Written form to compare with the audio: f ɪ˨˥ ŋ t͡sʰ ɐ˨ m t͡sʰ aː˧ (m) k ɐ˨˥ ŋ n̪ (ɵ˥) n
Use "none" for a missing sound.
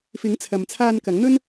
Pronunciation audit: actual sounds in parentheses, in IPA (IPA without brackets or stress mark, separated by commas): n, ɵ˥